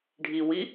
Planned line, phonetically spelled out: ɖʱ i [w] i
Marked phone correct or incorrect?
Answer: correct